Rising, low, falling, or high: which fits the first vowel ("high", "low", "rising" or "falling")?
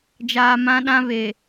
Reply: low